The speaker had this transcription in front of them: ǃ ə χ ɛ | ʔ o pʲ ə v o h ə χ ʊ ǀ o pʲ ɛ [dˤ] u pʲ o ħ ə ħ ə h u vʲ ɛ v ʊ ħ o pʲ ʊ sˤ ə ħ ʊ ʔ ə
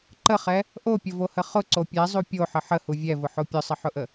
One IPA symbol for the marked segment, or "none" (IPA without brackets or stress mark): zˤ